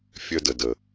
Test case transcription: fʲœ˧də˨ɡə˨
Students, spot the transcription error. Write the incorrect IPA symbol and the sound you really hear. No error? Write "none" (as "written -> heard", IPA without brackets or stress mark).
ɡ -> d